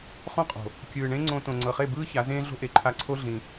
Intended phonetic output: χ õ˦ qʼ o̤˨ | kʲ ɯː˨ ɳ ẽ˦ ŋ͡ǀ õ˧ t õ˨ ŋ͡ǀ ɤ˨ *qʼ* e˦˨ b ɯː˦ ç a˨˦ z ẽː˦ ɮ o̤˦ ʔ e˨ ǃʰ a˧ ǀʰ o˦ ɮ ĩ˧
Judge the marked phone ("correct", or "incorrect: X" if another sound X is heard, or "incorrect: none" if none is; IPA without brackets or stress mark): incorrect: χ